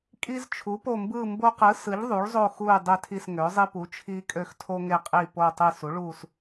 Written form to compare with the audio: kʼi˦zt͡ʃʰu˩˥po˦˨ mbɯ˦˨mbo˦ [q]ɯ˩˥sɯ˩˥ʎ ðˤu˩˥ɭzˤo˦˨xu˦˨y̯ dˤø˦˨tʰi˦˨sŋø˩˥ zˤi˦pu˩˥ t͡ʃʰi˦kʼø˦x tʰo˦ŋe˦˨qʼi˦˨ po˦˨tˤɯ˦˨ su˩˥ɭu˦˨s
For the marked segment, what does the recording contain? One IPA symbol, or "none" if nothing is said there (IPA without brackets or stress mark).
q